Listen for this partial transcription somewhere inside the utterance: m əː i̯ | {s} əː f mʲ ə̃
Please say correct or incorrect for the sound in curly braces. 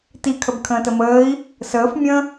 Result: correct